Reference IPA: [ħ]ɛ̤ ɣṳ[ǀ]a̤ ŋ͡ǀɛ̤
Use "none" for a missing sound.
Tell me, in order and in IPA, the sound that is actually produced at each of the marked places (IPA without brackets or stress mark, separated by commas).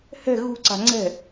h, ǀ